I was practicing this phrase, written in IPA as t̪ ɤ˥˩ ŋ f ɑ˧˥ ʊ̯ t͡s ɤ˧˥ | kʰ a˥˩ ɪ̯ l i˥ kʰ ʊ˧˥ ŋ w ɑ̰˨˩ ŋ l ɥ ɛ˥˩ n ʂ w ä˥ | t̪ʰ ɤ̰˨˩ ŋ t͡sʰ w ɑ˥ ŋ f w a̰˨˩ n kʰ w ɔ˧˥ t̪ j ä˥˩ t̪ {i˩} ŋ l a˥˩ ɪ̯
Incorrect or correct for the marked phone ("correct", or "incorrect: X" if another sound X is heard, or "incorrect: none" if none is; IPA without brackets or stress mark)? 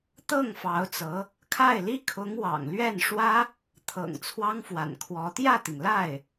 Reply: correct